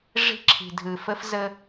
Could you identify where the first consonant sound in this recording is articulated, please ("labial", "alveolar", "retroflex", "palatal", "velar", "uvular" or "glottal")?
retroflex